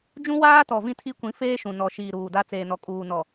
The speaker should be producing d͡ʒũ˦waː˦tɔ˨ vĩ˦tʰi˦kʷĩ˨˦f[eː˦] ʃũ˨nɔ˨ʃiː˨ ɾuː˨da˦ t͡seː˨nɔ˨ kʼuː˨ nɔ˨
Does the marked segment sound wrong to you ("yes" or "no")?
no